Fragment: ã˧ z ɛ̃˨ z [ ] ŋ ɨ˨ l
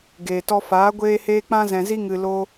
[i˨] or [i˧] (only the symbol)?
i˧